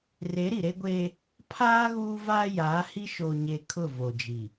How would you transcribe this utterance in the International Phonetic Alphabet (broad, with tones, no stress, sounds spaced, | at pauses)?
r e˨˦ ɾ i˨ ɾ e˦ ɡʷ eː˦ | pʰ aː˦ ɣ uː˦ v aː˦ j aː˨˦ h i˦ ʃ o˨ ɲ e˨ kʰ ʊ˦˨ v o˨ d͡ʒ i˨